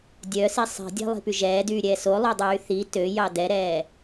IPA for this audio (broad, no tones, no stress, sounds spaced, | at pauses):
dʲ œ s i sˤ i̤ dʲ ɛ̤ lˠ i̤ p y ʒ ɛː d yː ɾʲ ɛː s o lˠ ø dˤ yː θ i t ø j ɑ d ɛ ɾ ɛː